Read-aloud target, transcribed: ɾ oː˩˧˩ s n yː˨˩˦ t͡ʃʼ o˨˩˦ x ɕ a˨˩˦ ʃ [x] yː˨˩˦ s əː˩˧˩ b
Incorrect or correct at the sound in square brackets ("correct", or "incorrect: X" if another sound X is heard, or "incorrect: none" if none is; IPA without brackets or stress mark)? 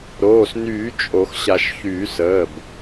incorrect: ç